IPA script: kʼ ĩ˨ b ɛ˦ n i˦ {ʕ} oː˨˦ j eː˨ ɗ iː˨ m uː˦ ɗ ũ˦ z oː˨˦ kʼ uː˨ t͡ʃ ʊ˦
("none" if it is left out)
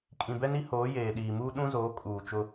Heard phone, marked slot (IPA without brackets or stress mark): h